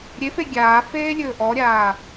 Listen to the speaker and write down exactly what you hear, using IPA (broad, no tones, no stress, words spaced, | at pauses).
ɾʲefe ɡʲaːfeːlʲɵː ʔɔɾʲaː